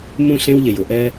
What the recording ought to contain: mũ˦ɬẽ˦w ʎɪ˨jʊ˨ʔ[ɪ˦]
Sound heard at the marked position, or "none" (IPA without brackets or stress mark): ɛ˦